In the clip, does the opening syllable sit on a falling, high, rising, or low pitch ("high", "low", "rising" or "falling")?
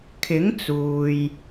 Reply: rising